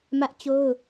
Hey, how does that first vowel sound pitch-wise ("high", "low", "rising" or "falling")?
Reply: high